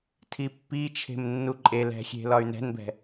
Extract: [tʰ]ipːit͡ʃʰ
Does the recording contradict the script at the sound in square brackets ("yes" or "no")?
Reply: no